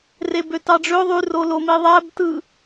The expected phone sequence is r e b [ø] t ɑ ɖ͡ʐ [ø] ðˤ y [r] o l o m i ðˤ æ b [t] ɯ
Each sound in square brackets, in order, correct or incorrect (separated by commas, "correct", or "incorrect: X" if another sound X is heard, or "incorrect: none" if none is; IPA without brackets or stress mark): correct, correct, correct, correct